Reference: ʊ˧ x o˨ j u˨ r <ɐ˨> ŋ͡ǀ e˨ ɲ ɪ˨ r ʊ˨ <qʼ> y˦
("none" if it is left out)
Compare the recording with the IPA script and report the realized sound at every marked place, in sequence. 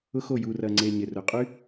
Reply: ɐ˨, qʼ

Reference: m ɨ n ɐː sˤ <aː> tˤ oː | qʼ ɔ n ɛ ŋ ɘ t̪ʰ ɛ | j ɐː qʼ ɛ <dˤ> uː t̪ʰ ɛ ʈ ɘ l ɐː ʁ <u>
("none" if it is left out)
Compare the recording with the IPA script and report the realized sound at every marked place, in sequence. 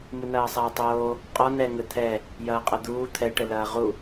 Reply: ɐː, d̪, u

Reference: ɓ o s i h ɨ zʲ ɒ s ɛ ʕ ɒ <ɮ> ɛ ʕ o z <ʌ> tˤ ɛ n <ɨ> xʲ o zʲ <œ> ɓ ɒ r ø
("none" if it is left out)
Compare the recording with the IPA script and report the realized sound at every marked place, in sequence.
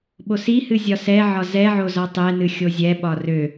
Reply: z, ɒ, ɨ, ɛ

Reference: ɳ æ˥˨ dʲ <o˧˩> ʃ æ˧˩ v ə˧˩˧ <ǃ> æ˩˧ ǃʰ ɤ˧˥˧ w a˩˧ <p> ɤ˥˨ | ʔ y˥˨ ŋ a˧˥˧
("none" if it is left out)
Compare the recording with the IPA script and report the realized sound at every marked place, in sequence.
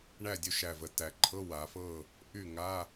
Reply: o˥˨, t, f

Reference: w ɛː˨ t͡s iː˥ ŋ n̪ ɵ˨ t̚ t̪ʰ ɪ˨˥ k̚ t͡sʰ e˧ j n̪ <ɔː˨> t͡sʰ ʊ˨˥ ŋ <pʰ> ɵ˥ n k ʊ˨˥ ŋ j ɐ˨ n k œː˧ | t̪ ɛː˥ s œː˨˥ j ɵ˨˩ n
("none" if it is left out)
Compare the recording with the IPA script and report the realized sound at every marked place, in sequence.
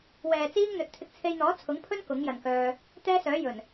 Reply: ɔː˨˥, pʰ

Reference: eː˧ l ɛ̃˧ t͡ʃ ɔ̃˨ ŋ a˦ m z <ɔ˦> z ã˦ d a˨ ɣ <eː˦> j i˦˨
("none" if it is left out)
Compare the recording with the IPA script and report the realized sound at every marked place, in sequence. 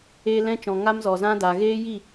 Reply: ɔ˨, eː˦

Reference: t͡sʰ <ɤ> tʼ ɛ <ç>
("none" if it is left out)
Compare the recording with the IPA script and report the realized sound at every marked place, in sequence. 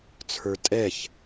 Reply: ə˞, ç

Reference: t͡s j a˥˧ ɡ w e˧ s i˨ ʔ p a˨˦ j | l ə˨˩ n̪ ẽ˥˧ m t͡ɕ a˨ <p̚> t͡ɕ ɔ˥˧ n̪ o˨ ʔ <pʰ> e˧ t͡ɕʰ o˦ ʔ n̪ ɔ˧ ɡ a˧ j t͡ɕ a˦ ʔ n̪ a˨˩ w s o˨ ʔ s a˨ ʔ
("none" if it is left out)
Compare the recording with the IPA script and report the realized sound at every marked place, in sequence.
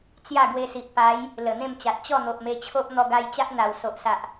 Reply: t̚, m

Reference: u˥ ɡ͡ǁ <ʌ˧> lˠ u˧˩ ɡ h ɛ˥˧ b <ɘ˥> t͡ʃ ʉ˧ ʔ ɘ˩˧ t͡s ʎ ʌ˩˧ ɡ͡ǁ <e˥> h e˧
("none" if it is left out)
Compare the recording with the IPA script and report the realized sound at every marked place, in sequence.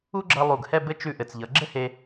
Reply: ʌ˧, ɘ˥, ɘ˥

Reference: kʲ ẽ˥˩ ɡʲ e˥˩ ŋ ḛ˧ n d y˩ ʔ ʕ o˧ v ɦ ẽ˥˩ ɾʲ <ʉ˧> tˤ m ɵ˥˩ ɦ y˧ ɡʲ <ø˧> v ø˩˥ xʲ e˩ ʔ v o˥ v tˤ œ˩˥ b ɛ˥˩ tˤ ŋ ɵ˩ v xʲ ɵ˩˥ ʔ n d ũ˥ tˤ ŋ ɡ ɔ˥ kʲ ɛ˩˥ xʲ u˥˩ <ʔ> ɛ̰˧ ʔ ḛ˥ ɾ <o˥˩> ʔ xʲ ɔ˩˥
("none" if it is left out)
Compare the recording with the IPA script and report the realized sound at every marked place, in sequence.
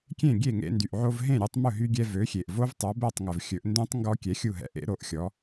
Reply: ʉ˧, ɛ˧, ɦ, o˥˩

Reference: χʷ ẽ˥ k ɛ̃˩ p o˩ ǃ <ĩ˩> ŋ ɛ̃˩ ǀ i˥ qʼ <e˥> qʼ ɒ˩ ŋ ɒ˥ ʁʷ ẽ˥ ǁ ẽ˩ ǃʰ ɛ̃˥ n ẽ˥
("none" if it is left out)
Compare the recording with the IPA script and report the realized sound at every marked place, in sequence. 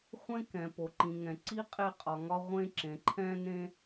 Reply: ĩ˩, e˥

